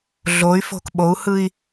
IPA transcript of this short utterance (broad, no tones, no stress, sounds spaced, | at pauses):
ɮ o y̯ f o̤ k ɓ o u̯ h ɯ i̯